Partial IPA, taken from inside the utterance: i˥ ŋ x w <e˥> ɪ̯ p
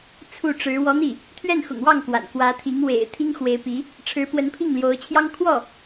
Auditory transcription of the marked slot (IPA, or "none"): e˧˥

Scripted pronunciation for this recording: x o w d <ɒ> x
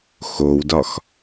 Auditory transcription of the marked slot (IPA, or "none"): ɒ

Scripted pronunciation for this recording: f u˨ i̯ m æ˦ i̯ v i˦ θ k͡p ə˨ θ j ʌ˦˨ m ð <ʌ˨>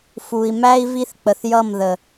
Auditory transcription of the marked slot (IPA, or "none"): ə˨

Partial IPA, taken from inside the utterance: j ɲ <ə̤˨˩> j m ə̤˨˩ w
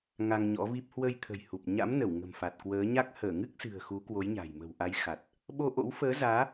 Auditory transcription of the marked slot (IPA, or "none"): a̤˨˩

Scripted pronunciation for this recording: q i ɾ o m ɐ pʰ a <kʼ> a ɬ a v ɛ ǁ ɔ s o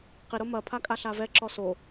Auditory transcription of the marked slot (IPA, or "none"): kʼ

